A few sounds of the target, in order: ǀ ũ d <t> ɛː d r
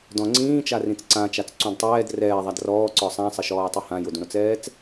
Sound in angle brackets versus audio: incorrect: tˤ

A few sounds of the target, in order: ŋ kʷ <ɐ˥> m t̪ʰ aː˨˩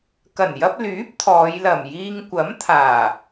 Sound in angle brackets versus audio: incorrect: ɐ˨˥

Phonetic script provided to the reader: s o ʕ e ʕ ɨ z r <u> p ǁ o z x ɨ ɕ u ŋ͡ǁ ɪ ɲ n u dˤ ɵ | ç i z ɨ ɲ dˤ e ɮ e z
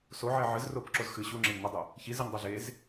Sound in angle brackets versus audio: incorrect: o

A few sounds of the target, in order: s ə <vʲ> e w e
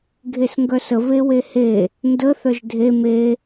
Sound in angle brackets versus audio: incorrect: v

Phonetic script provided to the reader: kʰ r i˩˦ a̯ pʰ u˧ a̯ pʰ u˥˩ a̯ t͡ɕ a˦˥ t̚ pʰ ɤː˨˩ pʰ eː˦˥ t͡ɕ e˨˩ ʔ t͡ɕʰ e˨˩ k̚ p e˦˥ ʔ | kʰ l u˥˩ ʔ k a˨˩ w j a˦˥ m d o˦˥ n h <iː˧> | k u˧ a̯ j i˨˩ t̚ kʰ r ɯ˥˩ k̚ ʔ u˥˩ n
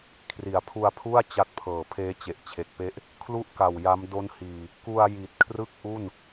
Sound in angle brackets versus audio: incorrect: iː˨˩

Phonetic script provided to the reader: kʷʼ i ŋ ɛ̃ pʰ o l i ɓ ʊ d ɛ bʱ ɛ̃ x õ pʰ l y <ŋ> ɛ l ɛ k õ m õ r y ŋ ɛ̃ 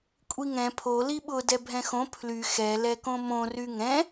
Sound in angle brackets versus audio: incorrect: x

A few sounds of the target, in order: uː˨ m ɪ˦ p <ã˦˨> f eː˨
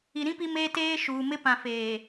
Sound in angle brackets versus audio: incorrect: ã˨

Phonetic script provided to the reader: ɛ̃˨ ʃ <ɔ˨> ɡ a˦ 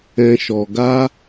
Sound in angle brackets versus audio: correct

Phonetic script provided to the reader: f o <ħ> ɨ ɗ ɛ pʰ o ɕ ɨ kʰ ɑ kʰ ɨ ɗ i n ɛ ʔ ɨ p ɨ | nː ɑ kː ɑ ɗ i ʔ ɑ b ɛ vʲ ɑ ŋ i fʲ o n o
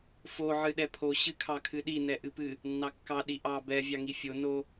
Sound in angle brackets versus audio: incorrect: ʕ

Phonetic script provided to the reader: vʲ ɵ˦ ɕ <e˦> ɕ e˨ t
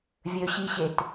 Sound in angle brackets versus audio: incorrect: i˦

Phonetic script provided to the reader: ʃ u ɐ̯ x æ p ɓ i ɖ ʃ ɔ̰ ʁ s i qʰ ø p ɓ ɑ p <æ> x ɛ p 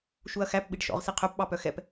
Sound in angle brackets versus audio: incorrect: œ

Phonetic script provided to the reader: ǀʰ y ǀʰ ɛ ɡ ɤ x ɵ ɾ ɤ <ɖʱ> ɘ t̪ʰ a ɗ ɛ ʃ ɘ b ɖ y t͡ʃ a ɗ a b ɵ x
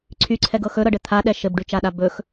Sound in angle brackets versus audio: incorrect: ɖ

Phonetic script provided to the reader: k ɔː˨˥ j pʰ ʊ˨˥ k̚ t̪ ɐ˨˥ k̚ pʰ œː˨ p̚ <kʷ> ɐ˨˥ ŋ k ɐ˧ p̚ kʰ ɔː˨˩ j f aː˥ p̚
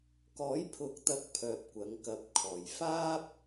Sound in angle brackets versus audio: correct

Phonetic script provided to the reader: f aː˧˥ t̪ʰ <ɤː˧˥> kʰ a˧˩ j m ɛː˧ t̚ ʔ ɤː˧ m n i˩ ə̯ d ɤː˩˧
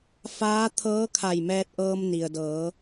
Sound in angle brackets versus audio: correct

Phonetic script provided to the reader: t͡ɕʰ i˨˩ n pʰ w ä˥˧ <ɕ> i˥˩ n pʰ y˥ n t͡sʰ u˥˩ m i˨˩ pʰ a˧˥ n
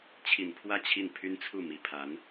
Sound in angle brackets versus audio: incorrect: t͡ɕʰ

